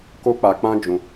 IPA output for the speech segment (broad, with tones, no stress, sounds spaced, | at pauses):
k o˦ k͡p a˧ k͡p ã˦ d͡ʒ ũ˧